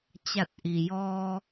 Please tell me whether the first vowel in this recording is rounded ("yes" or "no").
no